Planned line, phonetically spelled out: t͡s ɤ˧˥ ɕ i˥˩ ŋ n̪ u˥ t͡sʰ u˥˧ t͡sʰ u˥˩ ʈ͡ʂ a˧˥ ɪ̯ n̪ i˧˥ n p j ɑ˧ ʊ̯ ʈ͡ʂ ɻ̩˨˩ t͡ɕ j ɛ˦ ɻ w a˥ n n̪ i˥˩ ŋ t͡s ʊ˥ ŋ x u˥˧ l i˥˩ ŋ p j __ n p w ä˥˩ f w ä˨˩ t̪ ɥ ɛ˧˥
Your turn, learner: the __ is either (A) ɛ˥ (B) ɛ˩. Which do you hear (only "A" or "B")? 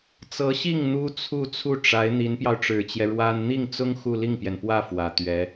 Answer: B